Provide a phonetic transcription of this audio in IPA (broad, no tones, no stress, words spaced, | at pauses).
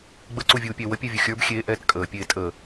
ɡ͡bəǀuvʲuːpʲɛ wəpʲɛvʲu xʲə˞b xʲeːʔɛːt kʼəːpʲeː tʼəː